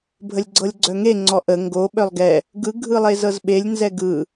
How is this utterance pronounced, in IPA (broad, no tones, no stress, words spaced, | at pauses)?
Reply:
bʱəlʲɡ͡ǀɤlʲɡ͡ǀœŋe ŋ͡ǀɔʔə ŋɡo ɓœlˠɡɛ | ɡɯ ɡʱɯlˠezɤzɓelʲ nzɛɡɯ